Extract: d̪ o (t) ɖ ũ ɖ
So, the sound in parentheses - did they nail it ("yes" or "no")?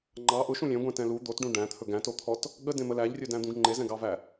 yes